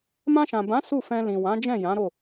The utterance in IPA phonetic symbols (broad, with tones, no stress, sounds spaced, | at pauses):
m ã˧ ʃ ã˨ b ã˨˦ s u˦˨ f ɛ̃˧ l ĩ˨ w ã˨˦ d͡ʒ ɛ̃˦˨ j ã˨˦ ɾ o˦˨